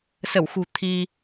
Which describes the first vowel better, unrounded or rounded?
unrounded